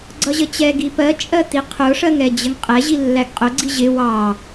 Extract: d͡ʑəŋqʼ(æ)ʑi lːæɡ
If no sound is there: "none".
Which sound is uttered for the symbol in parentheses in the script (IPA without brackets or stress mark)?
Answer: ɛ